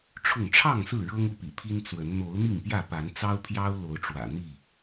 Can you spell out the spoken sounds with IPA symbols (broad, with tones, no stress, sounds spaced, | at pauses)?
ʈ͡ʂʰ ʊ˥˨ ŋ ʈ͡ʂʰ ɑ˥˨ ŋ s ɹ̩˥˨ ɻ ɤ˦ ŋ u˥˨ p ḭ˨˩ pʰ i˦ n t͡s w ə˨˦ n n̪ o˨˦ ʊ̯ n̪ i˥˨ ŋ p j ä˥˨ p a˨˦ n t͡s ɑ˦ ʊ̯ pʰ j ɑ˦ ʊ̯ l o˨˦ ʊ̯ ʈ͡ʂ w ä̰˨˩ n̪ i˥˨